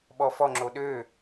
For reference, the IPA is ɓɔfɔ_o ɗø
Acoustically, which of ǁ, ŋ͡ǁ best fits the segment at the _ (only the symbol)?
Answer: ŋ͡ǁ